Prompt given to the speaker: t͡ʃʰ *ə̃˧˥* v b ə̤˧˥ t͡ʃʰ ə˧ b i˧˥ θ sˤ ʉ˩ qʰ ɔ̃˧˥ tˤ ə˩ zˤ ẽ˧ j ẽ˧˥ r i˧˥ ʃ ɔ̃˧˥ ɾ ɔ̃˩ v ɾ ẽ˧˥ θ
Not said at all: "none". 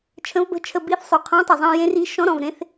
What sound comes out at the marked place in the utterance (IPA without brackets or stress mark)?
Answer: ə̃˧˥